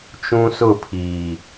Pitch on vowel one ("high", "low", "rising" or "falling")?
high